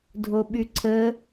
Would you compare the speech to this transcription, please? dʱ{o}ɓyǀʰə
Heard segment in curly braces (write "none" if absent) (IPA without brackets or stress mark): o